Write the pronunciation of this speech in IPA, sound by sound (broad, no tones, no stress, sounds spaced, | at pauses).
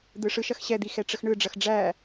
d̪ ɯ ʂ ɯ ʃ ɐ x ɕ ɛ d̪ i x ɛ ʈ͡ʂ ə x ɳ ɯ ɖ͡ʐ ɐ x ɖ͡ʐ æ